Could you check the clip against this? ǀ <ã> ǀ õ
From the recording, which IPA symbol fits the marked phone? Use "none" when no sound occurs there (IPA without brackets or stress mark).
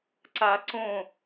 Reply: a